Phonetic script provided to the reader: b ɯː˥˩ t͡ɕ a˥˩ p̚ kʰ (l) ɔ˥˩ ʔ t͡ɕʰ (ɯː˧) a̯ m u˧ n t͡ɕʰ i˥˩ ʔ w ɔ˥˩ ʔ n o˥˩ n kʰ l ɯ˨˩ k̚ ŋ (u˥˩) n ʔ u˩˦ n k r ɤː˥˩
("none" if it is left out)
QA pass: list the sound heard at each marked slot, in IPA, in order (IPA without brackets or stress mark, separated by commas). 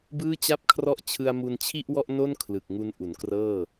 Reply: r, ɯ˧, u˧